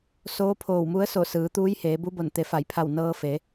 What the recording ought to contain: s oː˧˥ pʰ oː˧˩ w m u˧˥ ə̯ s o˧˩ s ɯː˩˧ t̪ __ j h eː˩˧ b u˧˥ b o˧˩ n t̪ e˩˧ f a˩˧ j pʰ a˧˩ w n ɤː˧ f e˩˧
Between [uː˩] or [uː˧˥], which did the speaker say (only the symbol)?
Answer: uː˧˥